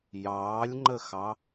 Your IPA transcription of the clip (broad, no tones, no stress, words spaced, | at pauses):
jɑːlʲŋ͡ǃəxɑ